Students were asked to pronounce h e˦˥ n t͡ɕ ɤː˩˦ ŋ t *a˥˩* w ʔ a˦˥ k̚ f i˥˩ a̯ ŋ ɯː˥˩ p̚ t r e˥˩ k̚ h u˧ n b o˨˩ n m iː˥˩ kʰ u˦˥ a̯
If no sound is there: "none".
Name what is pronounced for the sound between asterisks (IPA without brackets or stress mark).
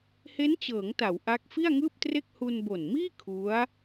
a˩˦